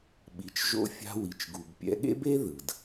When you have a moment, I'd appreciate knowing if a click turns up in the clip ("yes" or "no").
no